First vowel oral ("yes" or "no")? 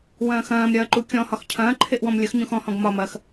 no